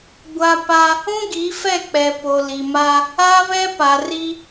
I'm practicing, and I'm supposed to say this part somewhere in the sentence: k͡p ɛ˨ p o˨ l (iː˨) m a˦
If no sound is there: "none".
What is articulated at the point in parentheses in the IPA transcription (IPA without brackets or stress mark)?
i˨